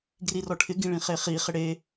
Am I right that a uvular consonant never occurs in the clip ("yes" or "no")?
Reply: no